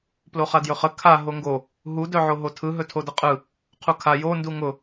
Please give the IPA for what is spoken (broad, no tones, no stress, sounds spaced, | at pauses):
p l o χ a d j ɵ χ ə kʰ a ɦ o ŋ ɡ o | ɦ u d œ ʕ o ɦ o tʰ ɯ ɦ ɵ tʰ o d ə qʼ ɯ | qʰ u kʰ a j o n d u ŋ ʊ